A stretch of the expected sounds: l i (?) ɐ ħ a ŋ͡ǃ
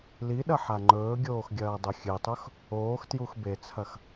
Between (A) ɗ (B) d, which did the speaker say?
A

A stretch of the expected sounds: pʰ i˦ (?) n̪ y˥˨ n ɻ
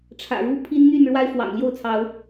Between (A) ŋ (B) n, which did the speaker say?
B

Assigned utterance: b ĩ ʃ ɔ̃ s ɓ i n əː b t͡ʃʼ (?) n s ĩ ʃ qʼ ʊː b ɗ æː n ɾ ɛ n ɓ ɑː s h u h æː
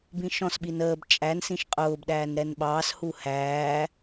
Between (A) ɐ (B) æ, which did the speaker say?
B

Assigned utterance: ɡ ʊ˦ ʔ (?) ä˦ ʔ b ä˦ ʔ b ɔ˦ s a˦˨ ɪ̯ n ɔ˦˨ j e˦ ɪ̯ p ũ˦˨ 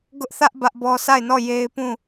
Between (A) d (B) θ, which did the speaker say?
B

